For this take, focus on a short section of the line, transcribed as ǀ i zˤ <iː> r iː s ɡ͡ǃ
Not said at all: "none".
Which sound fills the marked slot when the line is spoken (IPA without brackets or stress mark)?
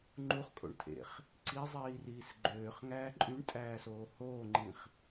iː